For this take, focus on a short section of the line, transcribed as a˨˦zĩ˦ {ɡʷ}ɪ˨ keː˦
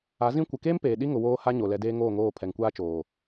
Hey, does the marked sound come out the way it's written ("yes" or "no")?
no